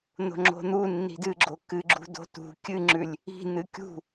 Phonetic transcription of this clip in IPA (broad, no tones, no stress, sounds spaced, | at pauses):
n̪ o̤ ŋ͡ǁ o̤ n̪ u nː i̤ d ɨ ɡ͡ǁ o k ɨ ɡ͡ǁ ṳ d o̤ t ṳ kʲ ɨ ŋ͡ǁ ʉ lʲ | i̤ n̪ ɨ kʲ ṳ